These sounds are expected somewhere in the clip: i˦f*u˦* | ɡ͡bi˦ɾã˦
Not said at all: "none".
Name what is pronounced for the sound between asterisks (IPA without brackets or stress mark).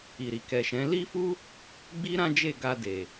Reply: u˦